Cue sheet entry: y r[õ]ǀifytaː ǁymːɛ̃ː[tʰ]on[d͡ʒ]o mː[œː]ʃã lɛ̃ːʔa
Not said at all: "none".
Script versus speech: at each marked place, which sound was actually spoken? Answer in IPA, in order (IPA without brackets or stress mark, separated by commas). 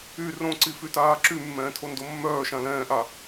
õ, tʰ, d, œː